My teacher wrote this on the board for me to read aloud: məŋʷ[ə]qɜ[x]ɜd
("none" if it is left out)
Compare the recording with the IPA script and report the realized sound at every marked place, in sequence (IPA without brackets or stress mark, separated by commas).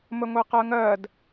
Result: ɛ, ŋ